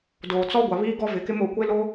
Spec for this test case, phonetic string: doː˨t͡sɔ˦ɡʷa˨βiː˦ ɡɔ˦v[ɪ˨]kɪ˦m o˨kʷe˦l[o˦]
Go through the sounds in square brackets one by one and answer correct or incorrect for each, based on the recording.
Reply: correct, correct

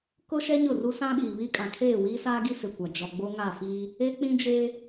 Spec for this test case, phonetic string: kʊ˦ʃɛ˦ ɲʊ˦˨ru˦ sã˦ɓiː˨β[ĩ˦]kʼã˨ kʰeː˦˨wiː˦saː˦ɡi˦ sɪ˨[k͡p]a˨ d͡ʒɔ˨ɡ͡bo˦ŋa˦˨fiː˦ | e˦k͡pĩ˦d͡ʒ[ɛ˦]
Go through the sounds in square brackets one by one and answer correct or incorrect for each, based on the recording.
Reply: incorrect: i˦, incorrect: kʷ, incorrect: e˦

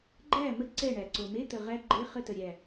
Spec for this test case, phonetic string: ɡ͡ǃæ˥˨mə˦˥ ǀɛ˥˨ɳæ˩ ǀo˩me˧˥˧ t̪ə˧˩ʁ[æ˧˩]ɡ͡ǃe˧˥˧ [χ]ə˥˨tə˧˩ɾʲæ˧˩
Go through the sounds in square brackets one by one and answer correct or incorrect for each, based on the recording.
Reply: incorrect: æ˦˥, correct

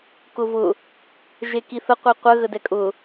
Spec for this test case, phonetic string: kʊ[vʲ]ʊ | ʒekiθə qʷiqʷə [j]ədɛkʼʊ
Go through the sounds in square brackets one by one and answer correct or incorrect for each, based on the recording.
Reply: incorrect: v, incorrect: ɣ

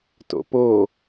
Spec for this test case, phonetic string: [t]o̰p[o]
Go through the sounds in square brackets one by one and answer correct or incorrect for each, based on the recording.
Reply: correct, correct

